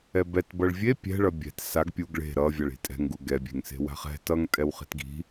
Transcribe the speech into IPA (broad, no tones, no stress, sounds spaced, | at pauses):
ɛ b ɛ t b ʌ ɭ vʲ e pʲ ɛ̤ ɭ ʌ bʲ ɛ̤ t s a ɡ pʲ u ɡ ɭ e̤ ɾ ʌ vʲ a ɭ i̤ tʼ ɛ̤ ŋ ɡ u ɡ ɛ bʲ e̤ ŋ s e̤ w a̤ χ ɛ̤ t ʌ ŋ tʼ ɛ w χ e̤ t ɡ i̤